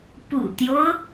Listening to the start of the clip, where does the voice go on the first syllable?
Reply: low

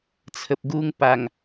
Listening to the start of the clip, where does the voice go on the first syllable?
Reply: low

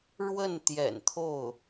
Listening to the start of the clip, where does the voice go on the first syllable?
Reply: falling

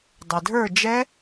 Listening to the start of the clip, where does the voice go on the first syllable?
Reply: low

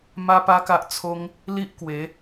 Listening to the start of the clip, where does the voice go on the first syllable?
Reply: high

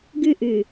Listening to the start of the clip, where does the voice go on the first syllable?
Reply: high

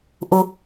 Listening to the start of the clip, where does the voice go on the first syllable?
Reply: low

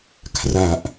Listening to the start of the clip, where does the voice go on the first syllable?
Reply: low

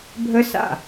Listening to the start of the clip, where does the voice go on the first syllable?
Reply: high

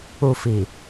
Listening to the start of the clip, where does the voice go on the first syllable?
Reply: low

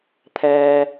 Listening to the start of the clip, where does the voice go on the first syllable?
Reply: high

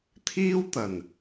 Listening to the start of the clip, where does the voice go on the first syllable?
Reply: high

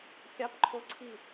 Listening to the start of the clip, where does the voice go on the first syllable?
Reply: high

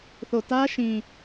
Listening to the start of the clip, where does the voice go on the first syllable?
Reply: low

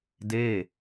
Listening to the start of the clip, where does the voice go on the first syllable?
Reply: falling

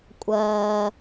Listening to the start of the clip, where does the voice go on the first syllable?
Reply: low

